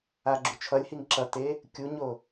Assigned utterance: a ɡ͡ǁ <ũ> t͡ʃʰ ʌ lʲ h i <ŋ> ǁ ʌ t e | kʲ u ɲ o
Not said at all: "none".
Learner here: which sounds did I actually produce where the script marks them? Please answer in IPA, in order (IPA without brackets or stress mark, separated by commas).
u, ŋ